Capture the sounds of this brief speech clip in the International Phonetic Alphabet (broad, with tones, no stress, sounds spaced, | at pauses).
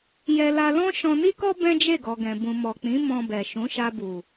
j ɛ˧ l a˧ l ɔ̃˦ ʃ ɔ̃˧ n i˦ k ɔ˦ b ɛ̃˦ d͡ʒ e˦˨ ɡ ɔ˨ ɡ ɛ̃˨ b ũ˨ m ɔ˨ k͡p ĩ˨˦ m ɔ̃˧ b ɛ˨ ʃ ũ˨˦ ʃ a˧ b u˨